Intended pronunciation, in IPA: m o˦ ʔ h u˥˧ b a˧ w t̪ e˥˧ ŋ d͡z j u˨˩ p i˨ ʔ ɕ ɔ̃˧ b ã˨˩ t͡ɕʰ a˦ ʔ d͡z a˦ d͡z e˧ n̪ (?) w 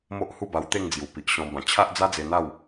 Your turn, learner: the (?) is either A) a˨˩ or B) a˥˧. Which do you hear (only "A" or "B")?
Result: B